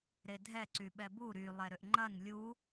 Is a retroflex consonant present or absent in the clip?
absent